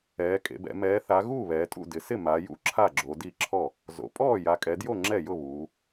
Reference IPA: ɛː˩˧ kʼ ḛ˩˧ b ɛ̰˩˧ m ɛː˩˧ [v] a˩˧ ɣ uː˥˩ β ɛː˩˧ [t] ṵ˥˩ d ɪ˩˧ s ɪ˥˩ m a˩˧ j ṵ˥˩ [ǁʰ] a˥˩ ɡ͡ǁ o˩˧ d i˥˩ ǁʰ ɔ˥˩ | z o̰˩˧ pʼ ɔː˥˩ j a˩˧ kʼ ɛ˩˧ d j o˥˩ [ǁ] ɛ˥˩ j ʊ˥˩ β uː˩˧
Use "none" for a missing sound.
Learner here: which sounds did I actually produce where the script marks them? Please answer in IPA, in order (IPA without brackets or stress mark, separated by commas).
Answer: θ, tʼ, ǁʰ, ŋ͡ǁ